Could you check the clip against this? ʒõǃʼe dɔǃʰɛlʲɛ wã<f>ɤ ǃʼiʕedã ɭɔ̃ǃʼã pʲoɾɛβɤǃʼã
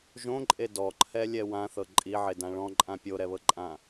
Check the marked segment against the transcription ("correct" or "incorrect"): incorrect